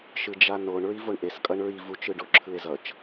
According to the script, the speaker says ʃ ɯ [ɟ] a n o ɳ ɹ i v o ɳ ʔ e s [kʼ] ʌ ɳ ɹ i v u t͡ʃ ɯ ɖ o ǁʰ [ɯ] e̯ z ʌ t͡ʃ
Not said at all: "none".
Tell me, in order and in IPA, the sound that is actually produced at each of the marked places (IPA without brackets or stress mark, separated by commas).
d͡ʒ, kʼ, ɯ